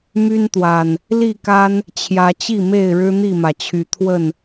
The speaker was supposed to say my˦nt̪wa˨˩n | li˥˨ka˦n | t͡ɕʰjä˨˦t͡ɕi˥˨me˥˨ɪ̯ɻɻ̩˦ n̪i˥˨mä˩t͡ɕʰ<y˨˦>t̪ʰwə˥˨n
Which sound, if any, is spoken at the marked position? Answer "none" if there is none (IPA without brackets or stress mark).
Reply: y˨˦